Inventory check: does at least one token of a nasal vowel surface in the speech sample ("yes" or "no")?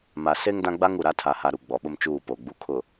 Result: yes